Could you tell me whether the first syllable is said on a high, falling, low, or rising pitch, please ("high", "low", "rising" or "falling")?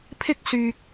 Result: high